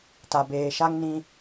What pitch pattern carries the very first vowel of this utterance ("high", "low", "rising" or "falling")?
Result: low